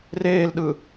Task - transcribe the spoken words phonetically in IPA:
r eː l ɗ ɯ

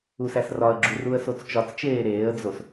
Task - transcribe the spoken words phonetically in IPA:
u s æ s r ɒ ə̯ ɡ͡ǁ u r u ə̯ s o t͡s t͡ʃ ɒ t͡s t͡ʃ eː ɾ eː ə̯ d͡z o s

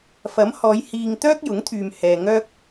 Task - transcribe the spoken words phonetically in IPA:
f ɐ˨˥ m h ɔː˨˧ j h iː˧ ŋ t̪ œː˥ k̚ j ʊ˨˥ ŋ t̪ʰ yː˨ m h ɛː˨ ŋ œː˥ k̚

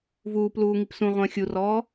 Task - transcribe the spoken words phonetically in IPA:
v uː p l uː ŋ i p s ũ ʁʷ ə̃ː xʲ u r ɔː

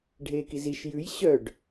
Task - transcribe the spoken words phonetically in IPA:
ɖʱ eː k i z i ʃ j ʉ j ɕ œ ɖ

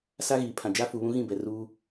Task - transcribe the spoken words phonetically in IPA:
s a˦ ɣ iː˨ pʰ ã˨ d͡ʒ a˦ f u˨ β ũ˦ ɣ ĩ˦˨ b ɛ˨ r uː˦

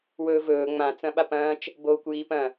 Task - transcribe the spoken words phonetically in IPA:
w ɵː v ɵː ŋ͡m ã t͡s ɐ̃ ɓ a p ɐ̃ː t͡ʃ | b oː kʷ j iː p ɐ̃

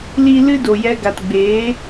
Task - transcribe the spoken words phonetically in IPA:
l i˨ l ɨ˦ d o˨ j ɛ˧ ɡ a˨ t ɡ͡b eː˨˦

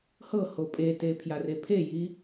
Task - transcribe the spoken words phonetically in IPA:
h ɤ h o pʼ e t e pʰ j a r e pʰ e j i

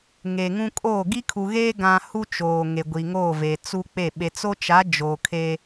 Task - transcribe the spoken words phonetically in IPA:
ŋ eː˨ ŋ ũ˦ kʼ oː˦˨ ɡ i˦ kʰ u˨ ɣ eː˦ ɡ ã˦ h u˦ t͡ʃ oː˨ ŋ e˨ ɡʷ i˨ ŋ oː˦˨ v e˨ t͡s u˦ k͡p e˦˨ ɓ e˨ t͡s o˦ t͡ʃ a˨˦ d͡ʒ oː˨ kʰ e˦

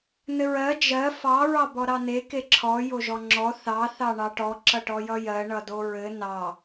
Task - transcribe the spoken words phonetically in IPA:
n ɘ ɹ ɜ d͡ʒ ɜ f ɑ ɹ ɑ b ɔ ɾ ɑ n e k e ǁʰ ɔ j o ʒ ɔ ŋ͡ǁ ɔ θ ɑ θ ɑ ɳ ɑ ʈ ɔ ǁ ʌ ʈ ɔ j ʌ j ɜ ɳ ʌ d o ɹ ɘ n ɑ

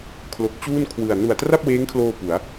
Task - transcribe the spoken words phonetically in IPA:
kʰ l o˨˩ k̚ t͡ɕ uː˥˩ n kʰ w ɯ˨˩ a̯ n u˨˩ a̯ t r a˥˩ p̚ w eː˦˥ ŋ kʰ l oː˧ p u˩˦ a̯

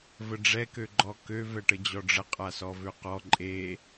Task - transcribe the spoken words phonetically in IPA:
v ə ɖ͡ʐ ɛ k ø ɡ͡ǃ ɔ k ø v ɛ ʈ ə d͡ʑ ɔ ɖ͡ʐ ə qʼ a s ɔ v ø q ɔ ǃʼ e

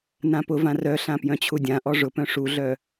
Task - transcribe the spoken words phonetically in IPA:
n ã p ʊ v ã r œ ɬ ã p j œ̃ t͡ɕʰ u dʲ ã ʔ ɔ ʐ ʊ p œ̃ ʂ u ɮ œ

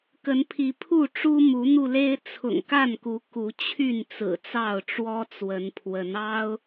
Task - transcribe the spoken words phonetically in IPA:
k ə˨˦ n pʰ i˨˦ pʰ u˥˨ ʈ͡ʂ u˦ m u˨˦ n̪ u˧ l e˦ ɪ̯ t͡sʰ ʊ̰˨˩ ŋ k a˥˨ n k u˨˦ k u˨˦ t͡ɕʰ y˥˨ n t͡s ɹ̩˨˩ t͡s ɑ˥˨ ʊ̯ ʈ͡ʂ w ɔ˦ t͡s w ə˨˦ n pʰ w ə˨˦ n ɑ˦ ʊ̯

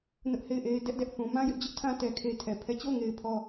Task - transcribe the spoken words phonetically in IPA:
n ʊ˦ ʔ h e˦˨ ɪ̯ ʔ e˦ ɪ̯ d ɛ˦ ʔ d ɛ˦ ʔ θ ũ˨ m ã˦ j ɪ˦ ʔ d͡ʑ ʊ˦ ʔ tʰ ã˦ t ɛ˦ kʰ e˦ tʰ ɛ˨ pʰ ɛ˦˨ t͡ɕ o˦˨ ʊ̯ ŋ e˨ ɪ̯ pʰ ɔ˨

